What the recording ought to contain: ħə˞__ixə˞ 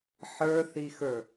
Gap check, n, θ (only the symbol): θ